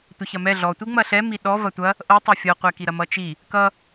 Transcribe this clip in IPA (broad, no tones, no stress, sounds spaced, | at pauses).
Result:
tʷ ɐ ç ɐ m ɛ ɮ ɔ tʷ i ŋ͡m ɐ ɬ ɛ m i ɗ ɔ v ɐ tʷ ɐ | ʔ ɤ tˤ ɐ fʲ ɤ qʷ ɛ k i ɾ ɐ m ʌ t͡ʃ i | k ʌ